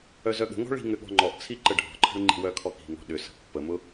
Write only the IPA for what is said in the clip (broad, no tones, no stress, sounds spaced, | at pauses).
œ z œ ɠ ə̤ ŋ ɔ̤ ɭ i̤ ŋ ʏ ɠ ɔ̤ ŋ͡ǃ ɔ ʔ t͡sʰ i ǃ ə ɖʱ ɔ̤ ǃʰ ə̤ ɭ ŋ͡ǃ i̤ w œ kʰ ɔ k i̤ ŋ ɔ̤ ɗ ʏ s ə̤ pː ə m ʊ